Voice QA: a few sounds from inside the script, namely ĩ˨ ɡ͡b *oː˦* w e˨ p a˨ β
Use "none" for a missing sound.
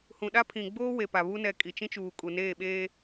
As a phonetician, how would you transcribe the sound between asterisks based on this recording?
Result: oː˦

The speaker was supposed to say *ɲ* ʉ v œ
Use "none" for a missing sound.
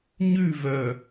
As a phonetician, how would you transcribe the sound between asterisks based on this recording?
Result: ɲ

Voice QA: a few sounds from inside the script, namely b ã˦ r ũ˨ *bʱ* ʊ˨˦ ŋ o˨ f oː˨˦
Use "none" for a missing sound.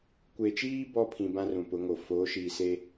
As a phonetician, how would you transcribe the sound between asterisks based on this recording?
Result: p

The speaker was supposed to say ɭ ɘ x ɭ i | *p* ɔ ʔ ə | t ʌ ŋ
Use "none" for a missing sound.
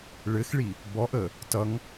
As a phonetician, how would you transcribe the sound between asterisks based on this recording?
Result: b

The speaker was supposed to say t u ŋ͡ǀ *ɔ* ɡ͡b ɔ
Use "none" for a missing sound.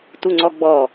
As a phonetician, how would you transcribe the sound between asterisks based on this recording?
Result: ɔ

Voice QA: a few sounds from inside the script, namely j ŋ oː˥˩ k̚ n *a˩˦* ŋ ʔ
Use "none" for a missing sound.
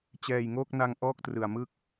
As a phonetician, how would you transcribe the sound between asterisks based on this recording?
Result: a˧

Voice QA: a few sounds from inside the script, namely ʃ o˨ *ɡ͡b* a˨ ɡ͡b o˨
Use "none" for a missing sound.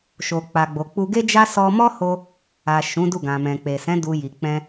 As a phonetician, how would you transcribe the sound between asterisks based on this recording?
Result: k͡p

